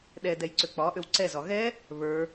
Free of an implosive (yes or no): no